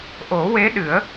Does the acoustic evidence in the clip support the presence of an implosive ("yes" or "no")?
yes